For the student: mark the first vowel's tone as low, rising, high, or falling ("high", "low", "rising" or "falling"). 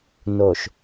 low